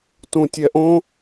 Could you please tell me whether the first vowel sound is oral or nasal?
nasal